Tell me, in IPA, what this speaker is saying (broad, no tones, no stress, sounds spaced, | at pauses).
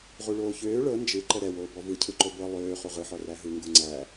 ʁ u ɭ oː ç øː ɭ ɤ n d͡ʒ ɯ ǃ ə ɾ ɛ w oː b ɔ v ɯ cʰ ɯ ǃ o b ɤ lˠ øː χ u ʁ ɯ ħ ɔ r æ ɦ ɯ ŋ ɡ u ŋ͡ǀ æ